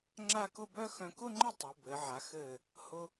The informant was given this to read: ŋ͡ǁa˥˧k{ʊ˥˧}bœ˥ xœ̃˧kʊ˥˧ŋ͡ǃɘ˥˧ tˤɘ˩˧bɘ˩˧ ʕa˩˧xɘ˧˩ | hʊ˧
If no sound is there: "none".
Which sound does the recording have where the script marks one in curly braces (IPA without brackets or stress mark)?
ʊ˥˧